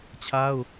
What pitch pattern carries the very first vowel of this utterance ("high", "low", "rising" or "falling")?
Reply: high